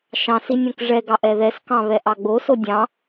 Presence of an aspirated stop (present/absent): absent